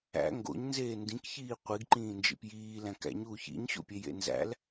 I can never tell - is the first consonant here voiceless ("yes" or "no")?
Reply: no